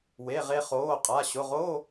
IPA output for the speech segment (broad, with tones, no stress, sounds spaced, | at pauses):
w e˩˧˩ ʁ e˧ χ oː˩˧˩ qʼ a˩˧˩ ɕ ʊ˩˧˩ ʁ oː˧˥˧